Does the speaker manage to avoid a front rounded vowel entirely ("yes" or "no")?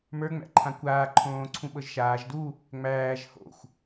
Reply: yes